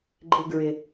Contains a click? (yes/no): yes